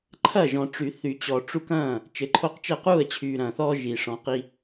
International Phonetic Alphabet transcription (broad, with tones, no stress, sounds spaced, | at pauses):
ǃʰ ɐ˥˩ ʒ ɔ̃˨ ʈ͡ʂ y˨˩˦ θ y˨˩˦ t͡ɕ ɔ˨ ʈ͡ʂ u˦ k ɐ̃ː˥˩ | t͡ʃ ɘ˨ ǃʰ o˥˩ q t͡ʃ ɜ˥˩ q uː˥˩ ə̯ t͡ɕʰ yː˨ ɾ ɐ̃˨ θ ɔː˦ ʒ i˨ ʂ ɔ̃˨˦ q i˦